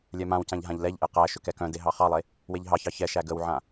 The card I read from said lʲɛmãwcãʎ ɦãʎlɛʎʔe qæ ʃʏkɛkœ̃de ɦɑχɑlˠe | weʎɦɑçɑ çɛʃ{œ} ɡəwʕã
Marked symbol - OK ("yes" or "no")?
no